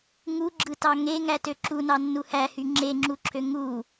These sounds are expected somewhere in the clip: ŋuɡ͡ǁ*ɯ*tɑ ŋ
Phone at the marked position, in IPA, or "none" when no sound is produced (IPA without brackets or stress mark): ɯ